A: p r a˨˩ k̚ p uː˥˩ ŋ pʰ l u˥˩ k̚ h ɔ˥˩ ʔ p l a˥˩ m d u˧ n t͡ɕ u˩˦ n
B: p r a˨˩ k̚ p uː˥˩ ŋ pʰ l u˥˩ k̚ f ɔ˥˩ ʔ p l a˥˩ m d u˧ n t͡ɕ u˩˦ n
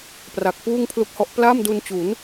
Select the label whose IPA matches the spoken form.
A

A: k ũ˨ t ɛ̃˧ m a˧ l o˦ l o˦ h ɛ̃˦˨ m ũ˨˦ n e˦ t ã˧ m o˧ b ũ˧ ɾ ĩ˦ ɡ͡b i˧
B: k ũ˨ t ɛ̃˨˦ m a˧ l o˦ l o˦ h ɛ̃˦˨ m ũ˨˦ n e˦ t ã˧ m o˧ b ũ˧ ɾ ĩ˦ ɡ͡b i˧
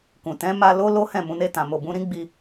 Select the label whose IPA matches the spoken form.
B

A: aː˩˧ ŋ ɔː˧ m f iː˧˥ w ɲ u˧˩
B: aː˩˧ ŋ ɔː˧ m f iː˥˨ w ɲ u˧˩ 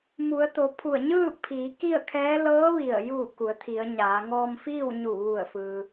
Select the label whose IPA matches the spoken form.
B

